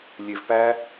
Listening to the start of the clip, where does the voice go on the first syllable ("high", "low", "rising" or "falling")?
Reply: low